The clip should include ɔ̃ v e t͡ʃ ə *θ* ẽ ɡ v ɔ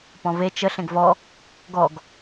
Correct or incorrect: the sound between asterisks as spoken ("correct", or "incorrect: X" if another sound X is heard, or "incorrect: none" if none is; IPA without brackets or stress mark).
incorrect: ɬ